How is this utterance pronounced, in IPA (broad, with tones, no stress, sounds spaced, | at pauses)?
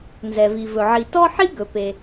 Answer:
n z ɛ˩ v i˩ v ɵ˩ ʕ i˩ t ɔ˥ ħ i˥ ɡ ɵ˩ p e˩